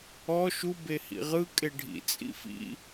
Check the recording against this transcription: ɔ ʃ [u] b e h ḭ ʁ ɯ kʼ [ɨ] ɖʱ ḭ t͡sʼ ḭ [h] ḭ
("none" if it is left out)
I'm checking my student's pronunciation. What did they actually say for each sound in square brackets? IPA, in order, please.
u, e, f

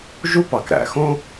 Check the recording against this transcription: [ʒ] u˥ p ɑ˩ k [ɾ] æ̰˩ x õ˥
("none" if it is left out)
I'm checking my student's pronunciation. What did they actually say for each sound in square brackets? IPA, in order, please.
ʒ, ɾ

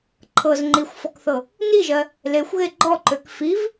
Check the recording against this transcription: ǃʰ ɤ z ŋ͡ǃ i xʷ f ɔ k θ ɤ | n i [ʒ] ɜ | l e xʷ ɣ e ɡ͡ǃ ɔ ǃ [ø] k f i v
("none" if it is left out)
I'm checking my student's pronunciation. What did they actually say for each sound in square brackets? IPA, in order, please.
ʒ, ø

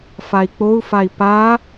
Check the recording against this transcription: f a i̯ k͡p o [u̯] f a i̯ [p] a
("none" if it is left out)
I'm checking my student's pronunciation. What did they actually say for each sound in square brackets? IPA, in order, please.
u̯, p

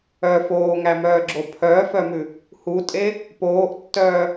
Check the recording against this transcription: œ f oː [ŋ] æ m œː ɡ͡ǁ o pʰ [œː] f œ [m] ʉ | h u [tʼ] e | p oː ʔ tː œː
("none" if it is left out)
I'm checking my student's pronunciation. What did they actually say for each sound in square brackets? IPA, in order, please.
ŋ, œː, m, tʼ

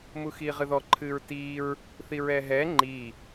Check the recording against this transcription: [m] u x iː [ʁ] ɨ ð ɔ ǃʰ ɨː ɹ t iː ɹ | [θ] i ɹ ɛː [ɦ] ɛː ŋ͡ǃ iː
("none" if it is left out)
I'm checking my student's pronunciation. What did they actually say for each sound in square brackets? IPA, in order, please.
m, ʁ, θ, ɦ

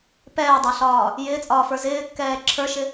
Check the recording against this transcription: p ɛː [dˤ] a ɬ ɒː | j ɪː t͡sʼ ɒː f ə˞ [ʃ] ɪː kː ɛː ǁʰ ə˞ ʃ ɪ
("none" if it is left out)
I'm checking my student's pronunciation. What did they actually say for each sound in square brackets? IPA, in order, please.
dˤ, z

